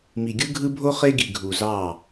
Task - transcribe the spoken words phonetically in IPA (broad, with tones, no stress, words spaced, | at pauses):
mi˨ɡʲɯ˦ɡʱɯ˦bʱo˦ χe˦ɡi˨ ɡʱu˨zɑ˦˨